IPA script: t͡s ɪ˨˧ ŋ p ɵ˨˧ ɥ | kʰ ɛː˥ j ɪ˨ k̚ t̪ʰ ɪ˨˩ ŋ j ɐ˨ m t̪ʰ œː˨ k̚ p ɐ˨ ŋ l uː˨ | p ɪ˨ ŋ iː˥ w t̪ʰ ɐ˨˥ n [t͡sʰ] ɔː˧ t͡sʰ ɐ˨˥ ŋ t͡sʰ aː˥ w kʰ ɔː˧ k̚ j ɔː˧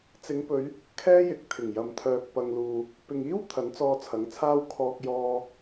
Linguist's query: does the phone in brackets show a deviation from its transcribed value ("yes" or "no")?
yes